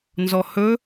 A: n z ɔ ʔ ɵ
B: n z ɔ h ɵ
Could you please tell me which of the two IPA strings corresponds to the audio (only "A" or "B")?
B